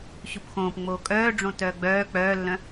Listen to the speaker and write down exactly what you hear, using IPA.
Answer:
ɕupxõːp ŋ͡moːkʼœːɖ͡ʐõ tœːɡ͡bœː k͡pœːlːœ̃

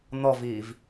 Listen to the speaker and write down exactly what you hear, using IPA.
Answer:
nɔviːv

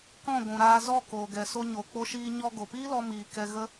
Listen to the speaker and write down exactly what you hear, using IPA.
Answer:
kɔ̃˦˨ɡʷũ˨ɾaː˧ zɔ˦˨koː˨ ɡɛ˨so˧ ɲo˨k͡po˧ʃiː˧ ɲɔ˧ ɡo˨piː˦lɔ˧ miː˨ kɛ˧ɣə˦

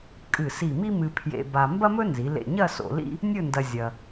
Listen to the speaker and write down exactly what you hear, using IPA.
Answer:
kʼɨ˧˩si˧˩mi˥ mɨ˧pʰjḛ˧ ba˧ mbɐ˥mɵ˥nzi˩˧ lḛ˧˩ɲɐ˥˧ so̰˧lḭ˥ | nʲɵ˥˧ndɐ˧ zʲɐ˧

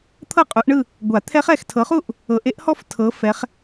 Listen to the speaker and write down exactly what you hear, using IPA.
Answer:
t̪ʰɤ˥˩qʼu˨˦ʔɳɯ˥˧ | ɡʷa˨˩˦t̪ʰɛ˦˥χɛ˥˩x tʰɤ˨˦χu˥˧ʔ | ɤ˨˦ʔ e˦˥ʔhɔ˥˧f tʰɤ˨˦fɛ˨˦χ

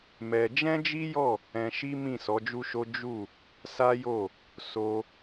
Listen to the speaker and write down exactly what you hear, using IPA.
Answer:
mɛ˧ d͡ʒɛ̃˦d͡ʒi˦jɔ˦˨ | ɛ̃˧ʃi˦ mĩ˦˨sɔ˨˦d͡ʒu˦ʃo˦ d͡ʒu˦˨ | sa˦jo˦˨ | so˧

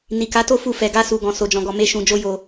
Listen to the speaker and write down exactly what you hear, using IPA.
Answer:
ni˨ka˨˦to˦˨ fu˧fɛ˨ɡa˧su˨ ɡɔ̃˨ so˨d͡ʒɔ̃˨ɡɔ˨ me˧ʃũ˨d͡ʒo˧ jo˨

